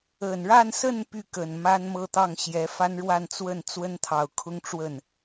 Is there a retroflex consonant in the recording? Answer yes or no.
yes